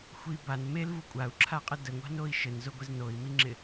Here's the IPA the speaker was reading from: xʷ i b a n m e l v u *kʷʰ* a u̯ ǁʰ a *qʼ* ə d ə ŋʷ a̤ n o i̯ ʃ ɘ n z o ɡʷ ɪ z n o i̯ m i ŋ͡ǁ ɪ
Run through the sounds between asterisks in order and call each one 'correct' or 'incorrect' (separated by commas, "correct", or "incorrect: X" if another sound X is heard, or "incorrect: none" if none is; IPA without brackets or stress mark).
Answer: incorrect: kʷʼ, correct